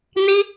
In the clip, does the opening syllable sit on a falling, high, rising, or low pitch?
high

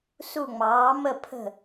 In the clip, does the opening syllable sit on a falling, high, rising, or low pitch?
falling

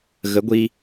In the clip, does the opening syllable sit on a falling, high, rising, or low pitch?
rising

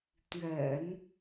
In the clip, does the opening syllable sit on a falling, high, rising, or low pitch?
low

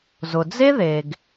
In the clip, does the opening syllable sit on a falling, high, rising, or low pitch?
low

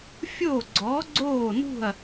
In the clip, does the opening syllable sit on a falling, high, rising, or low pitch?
falling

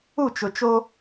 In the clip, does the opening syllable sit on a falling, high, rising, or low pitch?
falling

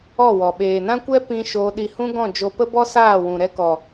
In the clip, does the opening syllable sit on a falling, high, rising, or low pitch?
falling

